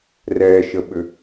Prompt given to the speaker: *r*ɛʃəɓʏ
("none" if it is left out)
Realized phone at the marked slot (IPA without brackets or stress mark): r